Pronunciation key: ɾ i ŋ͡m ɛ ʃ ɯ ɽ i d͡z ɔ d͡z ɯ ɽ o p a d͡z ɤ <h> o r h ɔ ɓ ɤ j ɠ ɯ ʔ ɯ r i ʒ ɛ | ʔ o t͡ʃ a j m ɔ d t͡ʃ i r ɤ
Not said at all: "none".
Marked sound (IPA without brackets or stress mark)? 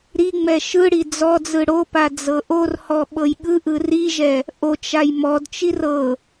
ʔ